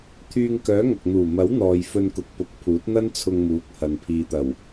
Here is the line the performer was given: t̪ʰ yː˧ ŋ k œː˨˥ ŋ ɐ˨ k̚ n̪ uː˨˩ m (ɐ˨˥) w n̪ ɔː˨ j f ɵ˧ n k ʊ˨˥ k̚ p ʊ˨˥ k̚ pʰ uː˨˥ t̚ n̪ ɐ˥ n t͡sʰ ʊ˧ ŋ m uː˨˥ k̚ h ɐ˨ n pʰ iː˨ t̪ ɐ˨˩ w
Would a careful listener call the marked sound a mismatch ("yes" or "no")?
no